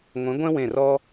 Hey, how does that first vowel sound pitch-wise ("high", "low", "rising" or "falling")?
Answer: rising